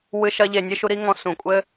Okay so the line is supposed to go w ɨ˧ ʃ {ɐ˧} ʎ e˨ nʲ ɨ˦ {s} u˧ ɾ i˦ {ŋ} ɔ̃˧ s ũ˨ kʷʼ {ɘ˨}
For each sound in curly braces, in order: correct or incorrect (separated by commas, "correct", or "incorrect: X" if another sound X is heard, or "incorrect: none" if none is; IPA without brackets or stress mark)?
correct, incorrect: ʃ, correct, incorrect: ɘ˦